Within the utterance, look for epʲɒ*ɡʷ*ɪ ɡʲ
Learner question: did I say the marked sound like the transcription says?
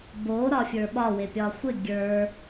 no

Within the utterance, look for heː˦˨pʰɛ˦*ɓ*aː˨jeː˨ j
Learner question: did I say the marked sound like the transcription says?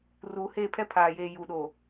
no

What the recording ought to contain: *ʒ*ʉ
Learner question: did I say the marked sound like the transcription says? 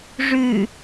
no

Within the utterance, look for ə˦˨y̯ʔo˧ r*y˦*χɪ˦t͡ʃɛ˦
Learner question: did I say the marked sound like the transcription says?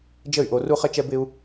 no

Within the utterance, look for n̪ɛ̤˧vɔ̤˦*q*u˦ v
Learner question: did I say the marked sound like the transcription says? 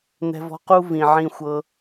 yes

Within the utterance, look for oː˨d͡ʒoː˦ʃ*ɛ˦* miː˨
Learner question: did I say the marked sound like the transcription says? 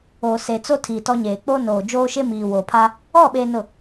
no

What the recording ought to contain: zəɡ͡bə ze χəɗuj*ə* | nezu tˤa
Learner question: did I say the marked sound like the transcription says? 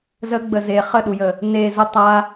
yes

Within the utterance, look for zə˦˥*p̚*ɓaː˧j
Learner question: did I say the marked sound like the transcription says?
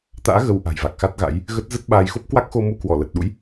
no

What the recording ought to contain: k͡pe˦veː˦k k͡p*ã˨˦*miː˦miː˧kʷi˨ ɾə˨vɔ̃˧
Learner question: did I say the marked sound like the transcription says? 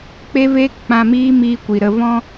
no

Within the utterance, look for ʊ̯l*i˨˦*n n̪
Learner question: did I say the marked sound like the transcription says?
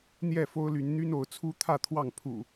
no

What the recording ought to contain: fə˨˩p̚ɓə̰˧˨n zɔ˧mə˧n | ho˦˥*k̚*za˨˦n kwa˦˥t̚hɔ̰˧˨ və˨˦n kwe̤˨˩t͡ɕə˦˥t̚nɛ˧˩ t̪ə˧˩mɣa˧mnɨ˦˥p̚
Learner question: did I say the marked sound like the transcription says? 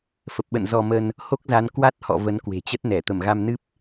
yes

